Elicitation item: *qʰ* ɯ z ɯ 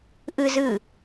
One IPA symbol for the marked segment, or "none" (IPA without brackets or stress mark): ʔ